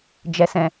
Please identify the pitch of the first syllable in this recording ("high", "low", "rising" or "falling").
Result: low